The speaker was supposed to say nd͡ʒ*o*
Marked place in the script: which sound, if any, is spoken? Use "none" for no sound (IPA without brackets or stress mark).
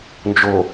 o